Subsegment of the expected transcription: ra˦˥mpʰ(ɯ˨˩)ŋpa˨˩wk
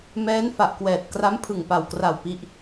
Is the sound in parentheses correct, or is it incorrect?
correct